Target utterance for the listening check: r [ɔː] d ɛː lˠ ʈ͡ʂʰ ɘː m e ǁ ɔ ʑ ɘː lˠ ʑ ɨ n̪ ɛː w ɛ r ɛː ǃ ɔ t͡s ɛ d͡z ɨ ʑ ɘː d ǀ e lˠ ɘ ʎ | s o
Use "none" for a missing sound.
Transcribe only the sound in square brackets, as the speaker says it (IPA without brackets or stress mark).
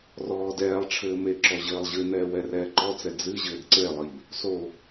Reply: ɔː